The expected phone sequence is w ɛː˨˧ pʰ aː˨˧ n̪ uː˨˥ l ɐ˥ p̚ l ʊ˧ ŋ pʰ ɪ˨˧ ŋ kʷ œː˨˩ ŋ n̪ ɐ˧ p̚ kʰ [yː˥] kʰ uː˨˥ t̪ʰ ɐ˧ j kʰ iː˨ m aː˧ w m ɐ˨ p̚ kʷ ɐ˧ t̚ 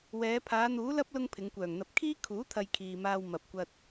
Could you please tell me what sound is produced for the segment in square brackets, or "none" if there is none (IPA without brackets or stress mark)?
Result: iː˥